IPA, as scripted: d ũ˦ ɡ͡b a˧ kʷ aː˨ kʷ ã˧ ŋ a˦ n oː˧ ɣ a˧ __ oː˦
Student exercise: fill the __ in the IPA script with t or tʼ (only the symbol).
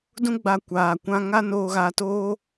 t